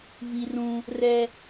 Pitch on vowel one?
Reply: high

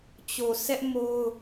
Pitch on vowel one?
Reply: low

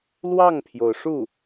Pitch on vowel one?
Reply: falling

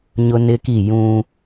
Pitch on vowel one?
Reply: high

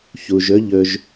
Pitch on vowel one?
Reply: low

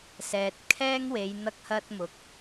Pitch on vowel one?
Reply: low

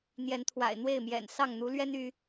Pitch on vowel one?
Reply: rising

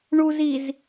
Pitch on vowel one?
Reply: low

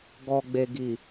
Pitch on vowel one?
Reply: low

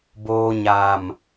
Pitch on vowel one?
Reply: low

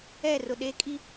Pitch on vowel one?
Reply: falling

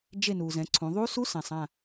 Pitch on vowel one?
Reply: falling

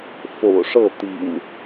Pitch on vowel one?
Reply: low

